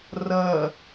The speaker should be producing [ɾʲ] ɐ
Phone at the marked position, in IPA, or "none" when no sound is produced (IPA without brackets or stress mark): r